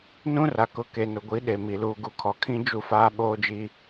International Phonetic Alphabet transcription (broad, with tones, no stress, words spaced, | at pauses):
nũ˦ra˨ kʊ˨˦ke˨nʊ˨ɡʷi˨˦ ɗe˨mi˨ luː˨ɡu˨kʰɔ˨kʰĩ˦ d͡ʒu˦faː˦ɓoː˦d͡ʒi˦